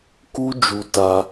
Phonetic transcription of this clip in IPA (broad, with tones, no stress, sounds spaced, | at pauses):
k u˦ d͡ʒ u˧ t a˧